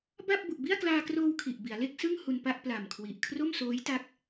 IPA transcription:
ba˥˩p̚ bu˨˩ʔbi˥˩a̯klaː˧kroː˧w kʰi˨˩ʔbi˩˦a̯ le˥˩k̚sɯ˥˩ŋ hu˧npa˥˩ʔ pla˨˩mkʰwi˨˩ʔ kʰro˥˩msoː˦˥jta˦˥k̚

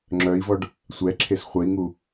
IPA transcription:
ŋ͡ǁœi̯vɔɖ | sʷɛǁʰes χʷəi̯ŋu

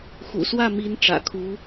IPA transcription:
xṵ˨˩swä˥˩mi˧˥n ʈ͡ʂä̰˨˩kʰu˧˥

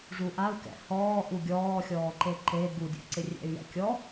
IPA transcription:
ʐuʔau̯kɛ̰ hɔːʔu ɡʲɔːxʲɔːǃe ǃe ɡudʲṵǀɪ rʲɛ̰y̯jɛ̰kʲɔ

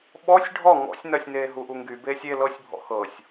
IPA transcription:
ɓɔsʲ ɖʱɔ ŋɔ̰sʲnɜsʲneː ɦuʔuŋɡy beːsʲe lɤsʲbʱɔ̰ xɤsʲ

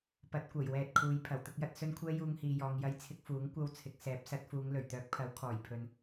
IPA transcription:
pɐ˨˥t̚kʷɐ˨˩jwɛː˨t̚ kʰuː˨j pʰɐ˨˩wt̪ʊ˧k̚jɐ˧t̚ sɵ˥nkʷʰɛː˥ juː˥ŋhiː˧jɔː˧ŋ jɐ˧jt͡sʰɪ˧k̚ fuː˨˥ŋ kʷɐ˧w t͡sʰɪ˨k̚ sɛː˨˥p̚sɐ˨˥t̚fuː˨˧ŋ lɵ˨˩ɥt̪œː˨˥k̚pʰɐ˨˥w kʰɔː˨˩j pʰɵ˧n

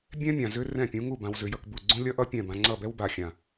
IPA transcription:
bʲɛ̃˦mʲã˨ zʏ˦rɛ̃˦˨pʲũ˨˦ ŋu˦˨ bã˧wzʏ˧jʌ˧kbu˦˨ ɡ͡ǀũ˦lʲʌ˦ʔʌ˦ pʲɛ̃˦˨bã˧ ŋ͡ǀʌ˦˨bɛ˦wba˨xʲã˨

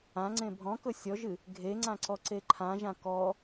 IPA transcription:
ãŋ͡ǀẽ bʱɔ̃kɵ sʲɔʒɨ | ɡʱeŋ͡ǀãǀɔǀe ǃʰãʒã kɔ

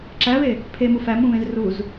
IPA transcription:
ǁæβe | pʰemu fæmũβẽz ruz

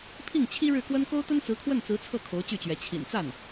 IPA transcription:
pʰi˥˩ŋt͡ɕʰi˥ ɻɻ̩˥˩kwə˥n ko˥ʊ̯t̪ə˥nt͡sɹ̩˧˥kʰwə˥˩n t͡sɹ̩˧˥t͡sʰɤ˥˩ kʰo˧˥ʊ̯t͡ɕy˥˩t͡ɕɥɛ˧˥ t͡ɕʰḭ˨˩nt͡sa˥˩n

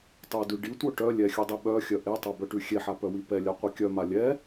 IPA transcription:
tˤudʉ ɖitʷœ ʈœ lʲɛxʲʉdˤi ɓœxʲœ ʔetˤɛbœʈʉ xʲeħapœwi pɛlʲaqʷi kʲœma lʲɛ

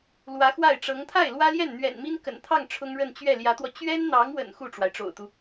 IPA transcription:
lwä˧˥xwa˥˩ɪ̯ʈ͡ʂɤ˧˥ŋ t̪ʰa˥˩ɪ̯lwä˥ljɛ˥˩n n̪ɥɛ̰˨˩nmi˥nkə̰˨˩nt̪ʰɑ˥˩ŋ ʈ͡ʂʰʊ˥ŋɻə˥˧n t͡ɕɥɛ˥˩ljä˧˥t̪wɔ˧ t͡ɕɥɛ˥nn̪ɑ˧˥ŋwə̰˨˩n xu˥˩ʈ͡ʂwa˩ɪ̯ʈ͡ʂo̰˨˩ʊ̯t̪u˦

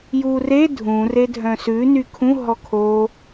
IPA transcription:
jure dʱũ redʱœ̃sʉ nykʰũ ɦɔkʰo

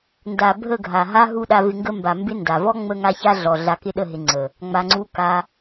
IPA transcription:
nda˨ bʱə˦˨ ɡʱa˨ɦa˦ ɦu˦ɗa˧vɪ˧ŋɡə˦ mba˨mbɪ˧ nda˨vɔ˦ ŋ͡mə˦ŋa˦ça˦ɮɔ˨ ɮa˧kɪ˦ɗə˦˨ɦɪ˧ ŋ͡ǀə˨ | ŋ͡ma˧ŋ͡ǀu˦ ka˧

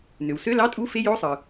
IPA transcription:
nø˩wsø˧˥˧lɑ˧˥˧tʼu˧˥˧ fe˧˥˧jo˧˥˧sˤɯ˩

